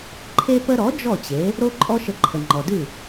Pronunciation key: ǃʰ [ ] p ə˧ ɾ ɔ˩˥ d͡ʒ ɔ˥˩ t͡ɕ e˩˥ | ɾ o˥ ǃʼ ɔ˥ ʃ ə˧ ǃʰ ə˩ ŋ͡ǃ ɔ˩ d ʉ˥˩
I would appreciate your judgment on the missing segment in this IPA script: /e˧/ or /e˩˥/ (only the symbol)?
e˧